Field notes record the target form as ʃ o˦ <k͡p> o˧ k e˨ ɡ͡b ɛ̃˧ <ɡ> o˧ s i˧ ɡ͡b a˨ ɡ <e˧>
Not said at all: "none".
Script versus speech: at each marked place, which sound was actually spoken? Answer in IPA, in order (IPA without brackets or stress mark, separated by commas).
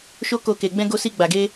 k, ɡ, e˧